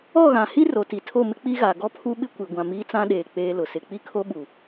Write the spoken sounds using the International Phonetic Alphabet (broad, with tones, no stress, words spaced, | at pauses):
ɔ˦˨ɣã˨hi˦ ro˨ti˨tʰo˦˨mɪ˦ k͡pi˦ɣa˨ ɡɔ˦pʰu˦ɓɪ˦kʷi˨ ɡʷã˨miː˦t͡sã˦ɗeː˨ k͡peː˦lʊ˨sɪ˦ k͡pi˦kʰo˦ɓu˨